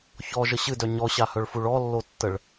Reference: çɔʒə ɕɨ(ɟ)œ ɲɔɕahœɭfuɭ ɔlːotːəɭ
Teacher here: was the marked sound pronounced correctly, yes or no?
no